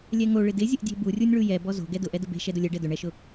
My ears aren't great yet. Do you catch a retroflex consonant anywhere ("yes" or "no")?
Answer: yes